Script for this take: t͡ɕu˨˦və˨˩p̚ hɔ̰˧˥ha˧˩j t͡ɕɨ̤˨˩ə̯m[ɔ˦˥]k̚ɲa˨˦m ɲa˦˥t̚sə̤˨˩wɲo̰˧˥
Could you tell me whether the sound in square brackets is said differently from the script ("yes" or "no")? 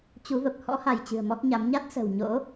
no